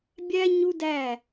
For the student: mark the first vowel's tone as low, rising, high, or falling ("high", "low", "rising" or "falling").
high